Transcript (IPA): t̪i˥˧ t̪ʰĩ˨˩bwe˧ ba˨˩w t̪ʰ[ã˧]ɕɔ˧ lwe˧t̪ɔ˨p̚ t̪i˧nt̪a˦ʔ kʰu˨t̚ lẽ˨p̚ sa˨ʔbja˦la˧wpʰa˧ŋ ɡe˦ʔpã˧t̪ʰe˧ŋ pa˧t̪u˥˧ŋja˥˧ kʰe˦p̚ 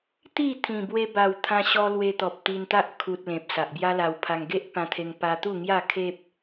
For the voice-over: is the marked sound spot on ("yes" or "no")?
yes